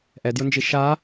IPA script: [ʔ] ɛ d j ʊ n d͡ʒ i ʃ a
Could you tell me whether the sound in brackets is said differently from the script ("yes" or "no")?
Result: no